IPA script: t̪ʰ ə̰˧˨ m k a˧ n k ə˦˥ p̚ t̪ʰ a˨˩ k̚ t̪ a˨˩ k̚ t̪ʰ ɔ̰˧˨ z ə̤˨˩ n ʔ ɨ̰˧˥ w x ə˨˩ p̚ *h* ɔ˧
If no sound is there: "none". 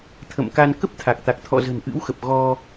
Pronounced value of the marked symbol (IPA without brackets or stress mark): ɣ